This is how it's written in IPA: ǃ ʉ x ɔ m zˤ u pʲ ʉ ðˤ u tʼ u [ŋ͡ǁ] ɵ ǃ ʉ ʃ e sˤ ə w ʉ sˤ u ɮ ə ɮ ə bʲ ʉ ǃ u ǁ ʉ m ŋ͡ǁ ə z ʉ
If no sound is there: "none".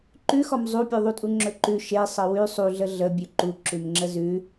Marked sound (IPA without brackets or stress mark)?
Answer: ŋ͡ǁ